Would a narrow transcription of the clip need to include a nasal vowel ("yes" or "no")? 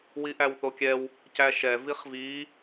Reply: no